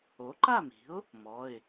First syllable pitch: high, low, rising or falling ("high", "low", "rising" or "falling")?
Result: rising